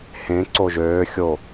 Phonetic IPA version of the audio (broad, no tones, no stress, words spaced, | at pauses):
hẽ ǀoʒøː xʲo